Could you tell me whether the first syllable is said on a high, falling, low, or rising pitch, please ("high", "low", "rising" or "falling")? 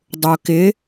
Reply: low